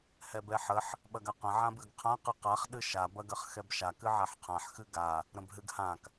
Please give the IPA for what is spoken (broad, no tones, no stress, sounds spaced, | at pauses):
h ɛ b ɛ ħ ə ħ | ɓ ɐ ɡ a q ə̃ ʕ ã b ɨ ɡ qʰ ã q ɨ q a χ ɗ ɨ ʃ a b ɐ ɡ ɐ χ x ɛ b ʃ a k ɨ ʕ a ħ qʰ ã ħ x ɨ ɡ a | ɾ ə̃ b ɦ ɨ ɡ h ã k